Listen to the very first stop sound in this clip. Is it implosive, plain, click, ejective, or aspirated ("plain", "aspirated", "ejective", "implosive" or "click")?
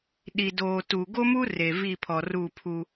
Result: implosive